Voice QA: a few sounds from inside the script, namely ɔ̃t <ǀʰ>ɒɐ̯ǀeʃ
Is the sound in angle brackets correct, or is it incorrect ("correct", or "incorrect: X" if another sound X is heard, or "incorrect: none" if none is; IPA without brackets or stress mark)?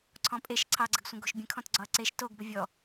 incorrect: ɡ͡ǀ